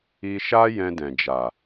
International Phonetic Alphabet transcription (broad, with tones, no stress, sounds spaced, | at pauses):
i˧ ʃ a˦ j ɛ̃˧ d ɛ̃˨ d͡ʒ a˨